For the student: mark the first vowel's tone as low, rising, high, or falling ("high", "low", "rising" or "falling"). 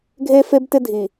high